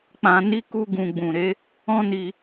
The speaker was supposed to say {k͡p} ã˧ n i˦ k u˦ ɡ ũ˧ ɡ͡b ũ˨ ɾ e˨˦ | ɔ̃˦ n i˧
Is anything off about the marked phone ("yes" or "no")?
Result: no